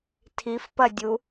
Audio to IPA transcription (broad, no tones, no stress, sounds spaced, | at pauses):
tʰ i f p ɐ dʲ u